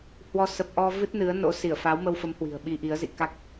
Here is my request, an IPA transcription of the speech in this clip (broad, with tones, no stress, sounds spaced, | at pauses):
h w ɔ˧ s ə˨˩ p̚ ʔ ɔ˧ v ɨ˦˥ t̚ n ɨ˨˦ ə̯ n o̰˧˥ s i˧˩ ə̯ f a˨˦ w m ə˧ w f ə˨˦ m h w i̤˨˩ ə̯ ɓ i˧ ʔ i˨˦ ə̯ z ḭ˧˨ k a˦˥ k̚